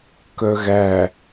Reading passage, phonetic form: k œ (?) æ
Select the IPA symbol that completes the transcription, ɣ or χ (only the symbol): ɣ